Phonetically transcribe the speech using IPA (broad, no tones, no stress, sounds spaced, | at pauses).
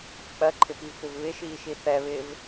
k͡p ɜ ǃʰ ɪ p i v p ɪ v β ɪ ʃ iː ʃ i θ ɛ β ɪː v